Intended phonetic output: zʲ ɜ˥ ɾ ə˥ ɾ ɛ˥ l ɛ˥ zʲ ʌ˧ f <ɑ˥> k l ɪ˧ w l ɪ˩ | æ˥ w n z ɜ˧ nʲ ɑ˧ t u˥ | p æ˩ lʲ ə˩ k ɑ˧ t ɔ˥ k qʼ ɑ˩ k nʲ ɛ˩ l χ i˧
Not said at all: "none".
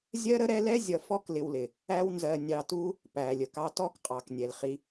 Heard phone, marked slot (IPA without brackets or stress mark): ɔ˥